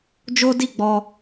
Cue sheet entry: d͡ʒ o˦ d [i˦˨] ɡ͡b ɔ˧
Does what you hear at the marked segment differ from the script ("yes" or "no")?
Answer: no